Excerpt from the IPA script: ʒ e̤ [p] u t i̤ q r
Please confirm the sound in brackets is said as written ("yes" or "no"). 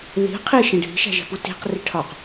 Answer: yes